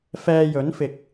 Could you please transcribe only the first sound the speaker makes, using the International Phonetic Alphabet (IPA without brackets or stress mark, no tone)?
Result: f